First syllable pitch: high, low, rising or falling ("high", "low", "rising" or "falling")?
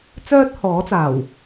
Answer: high